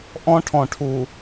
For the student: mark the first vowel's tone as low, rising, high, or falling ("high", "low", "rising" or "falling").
high